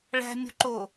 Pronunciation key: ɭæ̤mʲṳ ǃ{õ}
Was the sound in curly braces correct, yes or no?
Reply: no